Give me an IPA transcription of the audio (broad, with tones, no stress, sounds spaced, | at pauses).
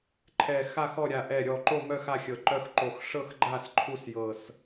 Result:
ǃʰ ɛ˨˩ x a˦˨ x ɔ˦˨ ɾʲ a˨˩ ʔ ɛ˨˩ ɾʲ ɔ˨˩ ǃ o˦˨ m œ˦˨ x a˦˨ xʲ ɤ˨˩ ǃ œ˦˨ x ǃ o˨˩ x ʂ ɤ˦˨ x ɡ͡ǃ a˦˨ s ǃʰ u˦˨ s j ɤ˨˩ s